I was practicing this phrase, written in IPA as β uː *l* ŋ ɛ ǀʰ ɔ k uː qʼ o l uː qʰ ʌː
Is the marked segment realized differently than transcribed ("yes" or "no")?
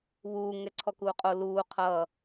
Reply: yes